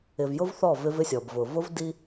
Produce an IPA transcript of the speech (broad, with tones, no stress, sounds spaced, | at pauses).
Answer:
ɪ˨ v j ʊ˦ v θ ɔ˦˨ v ɪ˦ v ɪ˦ sʲ ɔ˨ b v ʊ˨ v ʊ˦ v d i˦